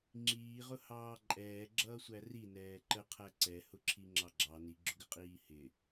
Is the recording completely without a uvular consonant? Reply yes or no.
no